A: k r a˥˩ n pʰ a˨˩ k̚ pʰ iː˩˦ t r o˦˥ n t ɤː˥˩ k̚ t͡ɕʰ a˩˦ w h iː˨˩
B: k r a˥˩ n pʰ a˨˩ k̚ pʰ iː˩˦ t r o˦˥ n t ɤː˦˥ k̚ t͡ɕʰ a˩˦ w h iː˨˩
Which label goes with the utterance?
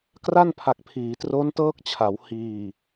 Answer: B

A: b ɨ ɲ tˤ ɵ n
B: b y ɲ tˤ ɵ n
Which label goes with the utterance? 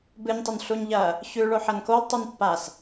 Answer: A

